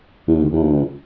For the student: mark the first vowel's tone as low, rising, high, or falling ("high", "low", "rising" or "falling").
low